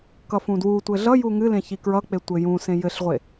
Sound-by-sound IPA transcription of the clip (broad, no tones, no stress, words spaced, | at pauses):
kʌfũdwutʷɘ ɮʌju ŋɨ lẽçikɹʌk͡pe tʷɘjũsẽ jɘɬʁʷe